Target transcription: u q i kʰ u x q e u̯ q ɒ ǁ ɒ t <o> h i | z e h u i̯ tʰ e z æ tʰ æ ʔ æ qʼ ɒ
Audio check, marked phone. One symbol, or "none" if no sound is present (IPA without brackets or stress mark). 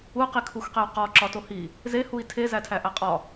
o